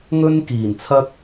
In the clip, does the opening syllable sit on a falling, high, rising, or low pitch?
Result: high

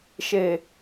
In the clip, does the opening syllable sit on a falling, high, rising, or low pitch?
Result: low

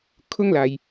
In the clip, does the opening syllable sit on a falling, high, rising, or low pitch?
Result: high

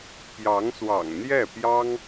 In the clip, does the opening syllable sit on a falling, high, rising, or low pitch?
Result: rising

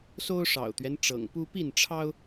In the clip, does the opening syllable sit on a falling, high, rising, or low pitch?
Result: high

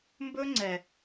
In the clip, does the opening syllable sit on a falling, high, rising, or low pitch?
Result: high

